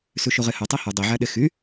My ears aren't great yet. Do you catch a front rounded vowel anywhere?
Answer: yes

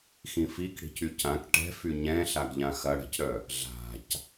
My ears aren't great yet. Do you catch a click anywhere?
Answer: no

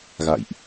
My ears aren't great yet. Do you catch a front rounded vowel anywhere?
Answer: no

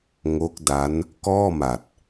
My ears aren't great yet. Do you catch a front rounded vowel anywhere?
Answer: no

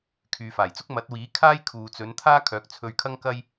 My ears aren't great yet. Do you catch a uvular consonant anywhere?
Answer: no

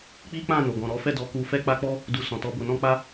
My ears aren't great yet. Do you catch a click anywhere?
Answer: no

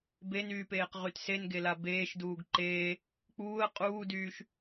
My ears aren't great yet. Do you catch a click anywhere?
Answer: yes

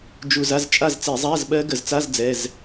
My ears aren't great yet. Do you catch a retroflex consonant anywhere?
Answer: no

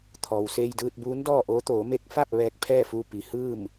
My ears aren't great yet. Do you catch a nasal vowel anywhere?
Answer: no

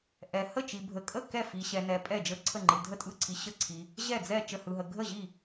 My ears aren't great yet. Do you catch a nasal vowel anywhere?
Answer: no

